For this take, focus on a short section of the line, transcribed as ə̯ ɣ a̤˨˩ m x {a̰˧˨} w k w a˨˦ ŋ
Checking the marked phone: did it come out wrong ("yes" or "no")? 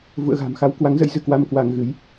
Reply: yes